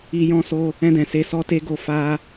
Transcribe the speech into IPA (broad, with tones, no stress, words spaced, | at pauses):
i˧jɔ̃˦so˦ | ɛ̃˧dɛ̃˨ se˧sɔ˦te˦ɡo˦˨ fa˧